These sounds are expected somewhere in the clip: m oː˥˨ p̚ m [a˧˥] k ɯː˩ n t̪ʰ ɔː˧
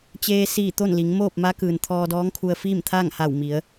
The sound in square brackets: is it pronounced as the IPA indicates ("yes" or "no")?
yes